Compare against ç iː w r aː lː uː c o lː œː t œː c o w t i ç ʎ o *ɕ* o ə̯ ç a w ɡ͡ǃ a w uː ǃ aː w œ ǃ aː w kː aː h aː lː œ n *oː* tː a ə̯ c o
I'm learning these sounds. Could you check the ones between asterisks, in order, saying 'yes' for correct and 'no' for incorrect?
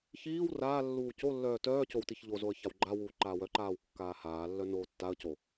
no, yes

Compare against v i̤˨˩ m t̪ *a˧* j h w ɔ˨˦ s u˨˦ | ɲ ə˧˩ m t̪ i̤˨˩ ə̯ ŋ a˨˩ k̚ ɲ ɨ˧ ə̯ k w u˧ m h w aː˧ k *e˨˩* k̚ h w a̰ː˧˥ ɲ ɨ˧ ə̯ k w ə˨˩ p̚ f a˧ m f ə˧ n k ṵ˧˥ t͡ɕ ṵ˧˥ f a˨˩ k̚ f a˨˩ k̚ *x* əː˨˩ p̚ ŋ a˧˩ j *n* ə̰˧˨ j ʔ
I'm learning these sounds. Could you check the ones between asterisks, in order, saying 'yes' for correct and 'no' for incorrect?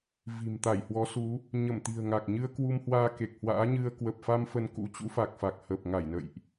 no, yes, no, yes

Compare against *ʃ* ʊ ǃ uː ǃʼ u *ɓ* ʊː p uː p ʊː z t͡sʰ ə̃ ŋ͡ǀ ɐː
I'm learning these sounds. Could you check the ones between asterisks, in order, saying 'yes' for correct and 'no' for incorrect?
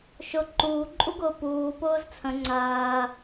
yes, no

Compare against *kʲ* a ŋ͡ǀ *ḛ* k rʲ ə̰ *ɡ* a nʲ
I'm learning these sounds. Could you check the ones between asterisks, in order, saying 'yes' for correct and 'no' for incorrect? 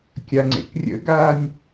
yes, yes, yes

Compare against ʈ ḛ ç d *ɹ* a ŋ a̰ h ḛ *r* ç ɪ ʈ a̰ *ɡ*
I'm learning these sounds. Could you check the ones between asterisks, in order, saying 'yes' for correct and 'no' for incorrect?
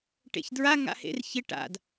yes, yes, no

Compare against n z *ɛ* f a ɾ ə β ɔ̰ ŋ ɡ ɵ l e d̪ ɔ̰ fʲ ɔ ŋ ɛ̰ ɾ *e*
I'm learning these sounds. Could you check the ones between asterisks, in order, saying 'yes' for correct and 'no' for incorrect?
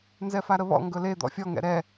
yes, no

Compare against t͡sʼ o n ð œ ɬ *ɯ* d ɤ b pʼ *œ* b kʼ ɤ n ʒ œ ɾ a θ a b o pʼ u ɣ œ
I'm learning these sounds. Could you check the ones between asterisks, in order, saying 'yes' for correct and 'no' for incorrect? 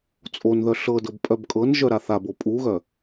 no, yes

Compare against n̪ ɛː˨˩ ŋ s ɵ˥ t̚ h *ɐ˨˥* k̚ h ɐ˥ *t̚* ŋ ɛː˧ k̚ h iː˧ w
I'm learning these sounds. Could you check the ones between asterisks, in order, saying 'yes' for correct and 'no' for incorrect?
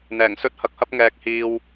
no, no

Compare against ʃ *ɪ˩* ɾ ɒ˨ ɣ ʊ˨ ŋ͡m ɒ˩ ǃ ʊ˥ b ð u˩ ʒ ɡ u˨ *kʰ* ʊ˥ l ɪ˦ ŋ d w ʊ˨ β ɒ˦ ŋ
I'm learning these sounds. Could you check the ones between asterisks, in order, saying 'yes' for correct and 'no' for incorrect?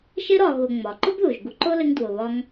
no, no

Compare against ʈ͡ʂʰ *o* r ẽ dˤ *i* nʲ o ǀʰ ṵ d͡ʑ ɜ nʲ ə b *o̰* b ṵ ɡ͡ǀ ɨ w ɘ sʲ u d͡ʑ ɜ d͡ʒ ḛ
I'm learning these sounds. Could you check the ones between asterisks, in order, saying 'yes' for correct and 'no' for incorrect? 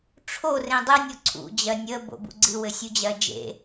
yes, no, yes

